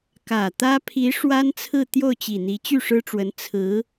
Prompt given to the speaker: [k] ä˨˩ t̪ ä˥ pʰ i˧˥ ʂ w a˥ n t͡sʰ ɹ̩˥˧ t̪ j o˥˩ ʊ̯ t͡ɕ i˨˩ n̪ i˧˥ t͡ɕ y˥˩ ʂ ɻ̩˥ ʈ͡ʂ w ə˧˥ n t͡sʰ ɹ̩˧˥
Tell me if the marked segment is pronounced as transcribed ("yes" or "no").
yes